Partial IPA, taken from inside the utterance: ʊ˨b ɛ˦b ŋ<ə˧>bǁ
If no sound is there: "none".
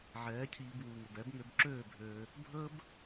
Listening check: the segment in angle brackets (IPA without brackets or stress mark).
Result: ø˧